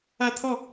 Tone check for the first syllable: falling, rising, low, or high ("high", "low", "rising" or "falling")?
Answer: high